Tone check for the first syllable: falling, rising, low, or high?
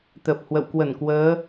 low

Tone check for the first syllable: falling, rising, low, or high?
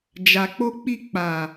low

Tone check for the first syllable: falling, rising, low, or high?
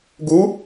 rising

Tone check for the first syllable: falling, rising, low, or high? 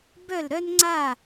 falling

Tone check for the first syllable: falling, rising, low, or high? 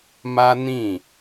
high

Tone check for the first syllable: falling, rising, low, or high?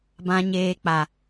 low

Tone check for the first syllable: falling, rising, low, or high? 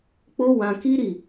high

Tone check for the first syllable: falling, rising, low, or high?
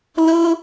high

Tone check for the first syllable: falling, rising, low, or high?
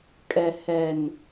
low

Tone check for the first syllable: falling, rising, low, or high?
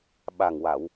low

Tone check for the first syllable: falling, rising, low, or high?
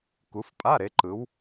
rising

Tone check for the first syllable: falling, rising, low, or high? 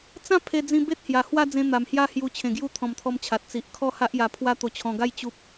falling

